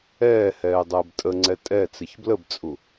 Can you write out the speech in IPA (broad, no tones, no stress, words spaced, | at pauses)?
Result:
ɛːhɛː dˤəːbtʼəŋ͡ǀɛ tʼɛt͡sɪç bləbt͡sʼu